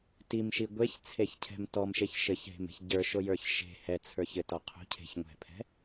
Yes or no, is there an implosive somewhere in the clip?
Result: no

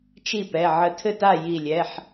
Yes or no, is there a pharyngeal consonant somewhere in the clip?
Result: yes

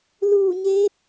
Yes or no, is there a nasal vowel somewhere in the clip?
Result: no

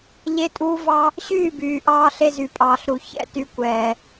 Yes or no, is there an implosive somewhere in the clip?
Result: no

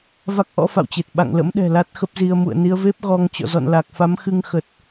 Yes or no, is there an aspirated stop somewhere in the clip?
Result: no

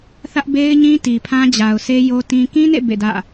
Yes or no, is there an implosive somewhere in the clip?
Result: no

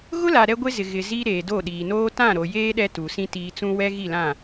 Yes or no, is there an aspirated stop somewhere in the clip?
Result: no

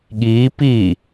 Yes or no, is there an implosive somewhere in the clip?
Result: yes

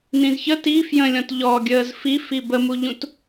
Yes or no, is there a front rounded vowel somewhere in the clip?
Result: no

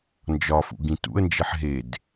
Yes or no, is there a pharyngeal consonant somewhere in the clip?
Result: yes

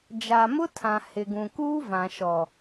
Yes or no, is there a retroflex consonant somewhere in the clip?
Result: no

